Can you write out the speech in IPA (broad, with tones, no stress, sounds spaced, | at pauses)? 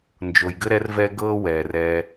n d͡ʒ o˨ j ɡ ɘ˥ ɾ ɛ˦ r v ɛ˦ ɡ ɤː˦ w ɛ˩ r ɛ˨